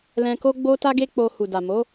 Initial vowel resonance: nasal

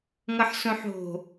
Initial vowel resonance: oral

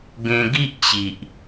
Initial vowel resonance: nasal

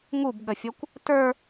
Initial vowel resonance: oral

